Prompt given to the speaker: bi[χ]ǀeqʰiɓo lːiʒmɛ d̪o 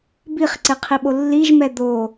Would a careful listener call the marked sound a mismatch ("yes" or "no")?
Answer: no